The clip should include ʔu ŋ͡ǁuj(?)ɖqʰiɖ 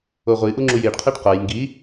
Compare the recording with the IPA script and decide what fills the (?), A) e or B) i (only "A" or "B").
A